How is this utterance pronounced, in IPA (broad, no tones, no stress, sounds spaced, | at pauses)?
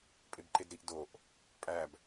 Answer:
pʼ e b ǃ e d ɾ i ʔ d o ʔ | pʼ æ b